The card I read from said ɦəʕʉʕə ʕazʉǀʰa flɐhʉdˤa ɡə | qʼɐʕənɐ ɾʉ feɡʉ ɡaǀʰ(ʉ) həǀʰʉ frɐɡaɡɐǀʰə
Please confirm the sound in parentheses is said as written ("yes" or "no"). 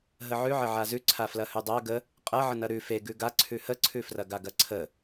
yes